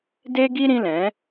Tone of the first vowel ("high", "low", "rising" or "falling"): high